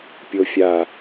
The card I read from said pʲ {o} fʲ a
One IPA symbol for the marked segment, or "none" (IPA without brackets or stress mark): o